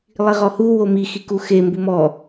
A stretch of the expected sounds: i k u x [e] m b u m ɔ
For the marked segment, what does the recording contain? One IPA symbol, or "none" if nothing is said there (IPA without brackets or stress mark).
e